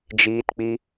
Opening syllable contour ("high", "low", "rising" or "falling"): high